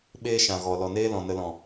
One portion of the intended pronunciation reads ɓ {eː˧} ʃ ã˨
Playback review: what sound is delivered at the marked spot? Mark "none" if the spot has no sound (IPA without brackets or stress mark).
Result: eː˦